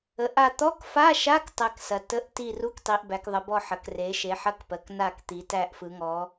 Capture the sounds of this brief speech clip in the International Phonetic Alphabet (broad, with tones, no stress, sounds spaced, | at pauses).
ə˩˧ ʔ a˦˨ t̪ ɔ˧˥˧ k f a˧˥˧ ʃ a˧˥˧ k tˤ æ˦˨ k s ɐ˩˧ t ə˧˥˧ ʔ t i˦˨ r u˧˥˧ k tˤ i˩˧ ʔ b æ˩˧ k ðˤ ə˩˧ b ɔ˦˨ ħ ɐ˩˧ k r e˩˧ ʃ e˩˧ ħ ɐ˧˥˧ k p ɜ˩˧ k n a˦˨ k t̪ i˩˧ t æ˦˨ ʔ f ɯ˩˧ ŋ ɔ˩˧